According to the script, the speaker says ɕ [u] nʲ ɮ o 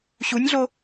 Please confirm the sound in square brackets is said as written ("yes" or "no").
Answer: yes